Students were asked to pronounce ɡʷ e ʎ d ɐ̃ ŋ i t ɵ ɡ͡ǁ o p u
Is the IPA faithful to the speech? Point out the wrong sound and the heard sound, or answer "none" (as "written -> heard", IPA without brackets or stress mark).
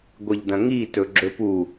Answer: o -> ɵ